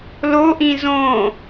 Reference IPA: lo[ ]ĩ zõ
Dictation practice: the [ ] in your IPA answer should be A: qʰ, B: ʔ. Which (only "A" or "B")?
B